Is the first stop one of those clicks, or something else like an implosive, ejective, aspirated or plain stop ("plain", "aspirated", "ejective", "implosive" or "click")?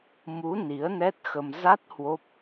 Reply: plain